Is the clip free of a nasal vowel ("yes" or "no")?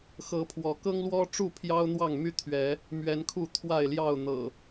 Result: yes